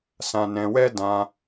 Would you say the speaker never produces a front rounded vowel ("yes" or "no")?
yes